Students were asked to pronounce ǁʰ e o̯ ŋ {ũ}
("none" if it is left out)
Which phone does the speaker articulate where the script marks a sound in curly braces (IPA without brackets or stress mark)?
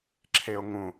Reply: ũ